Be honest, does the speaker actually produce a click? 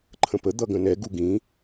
yes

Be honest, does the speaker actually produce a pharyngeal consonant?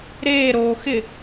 no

